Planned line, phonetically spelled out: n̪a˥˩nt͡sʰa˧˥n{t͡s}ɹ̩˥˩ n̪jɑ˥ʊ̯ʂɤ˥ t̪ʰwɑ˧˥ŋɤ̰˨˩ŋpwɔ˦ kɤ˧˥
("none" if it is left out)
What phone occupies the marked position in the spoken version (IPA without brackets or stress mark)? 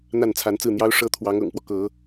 t͡s